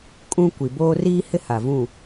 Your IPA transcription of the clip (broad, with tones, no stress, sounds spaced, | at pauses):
kʼ ũ˦ kʷ i˨ b oː˦ r iː˦ h ɪ˦ h a˨ v ũ˦˨